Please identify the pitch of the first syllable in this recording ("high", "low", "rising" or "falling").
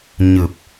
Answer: low